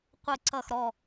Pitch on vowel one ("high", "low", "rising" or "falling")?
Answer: low